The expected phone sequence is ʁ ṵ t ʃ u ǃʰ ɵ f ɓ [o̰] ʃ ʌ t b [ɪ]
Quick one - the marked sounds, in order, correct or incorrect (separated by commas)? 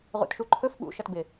incorrect, correct